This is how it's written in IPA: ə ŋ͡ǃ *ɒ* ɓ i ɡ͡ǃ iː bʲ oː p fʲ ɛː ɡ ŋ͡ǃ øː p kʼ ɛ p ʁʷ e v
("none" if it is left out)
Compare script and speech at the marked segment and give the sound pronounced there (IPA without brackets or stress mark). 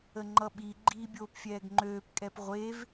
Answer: ʌ